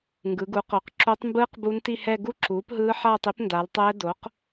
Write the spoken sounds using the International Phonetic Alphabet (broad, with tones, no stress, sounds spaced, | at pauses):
ŋ ɡ ɯ˩˧ ɡ u˩˥ q o˩˧ q ǁ o˧˥ tˤ m b ɯː˥ q b u˧˥ n t i˥˧ h ɛ˥˧ ɡ u˥ ǁ uː˩˥ p ɦ ɯː˧˥ ħ aː˥˧ tˤ i˧˥ p n d a˩˧ l tˤ ɛː˧˥ d o˩˥ q